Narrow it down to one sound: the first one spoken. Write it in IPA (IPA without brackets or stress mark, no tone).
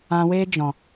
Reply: ã